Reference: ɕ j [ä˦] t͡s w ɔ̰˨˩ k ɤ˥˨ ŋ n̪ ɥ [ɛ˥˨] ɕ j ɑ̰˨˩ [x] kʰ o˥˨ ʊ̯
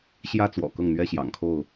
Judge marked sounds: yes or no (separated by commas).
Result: yes, no, no